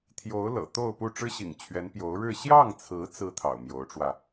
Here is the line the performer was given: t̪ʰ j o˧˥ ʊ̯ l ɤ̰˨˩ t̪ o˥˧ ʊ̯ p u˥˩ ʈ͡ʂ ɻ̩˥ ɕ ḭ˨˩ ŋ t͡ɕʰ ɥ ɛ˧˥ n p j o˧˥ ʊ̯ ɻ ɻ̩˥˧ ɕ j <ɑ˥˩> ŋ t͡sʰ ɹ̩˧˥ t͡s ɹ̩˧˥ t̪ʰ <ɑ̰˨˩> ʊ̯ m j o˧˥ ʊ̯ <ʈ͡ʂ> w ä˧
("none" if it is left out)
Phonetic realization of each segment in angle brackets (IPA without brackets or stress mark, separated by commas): ɑ˥˩, ɑ̰˨˩, ʈ͡ʂ